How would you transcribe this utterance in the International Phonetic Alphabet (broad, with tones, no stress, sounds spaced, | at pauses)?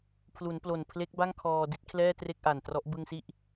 pʰ l u˩˦ n p l o˨˩ n pʰ l e˦˥ k̚ b a˥˩ ŋ kʰ ɔː˧ d i˦˥ t̚ kʰ l ɛː˥˩ t r e˥˩ k̚ ʔ a˨˩ n t r ɔ˦˥ ʔ b ɯ˧ ŋ s i˦˥ ʔ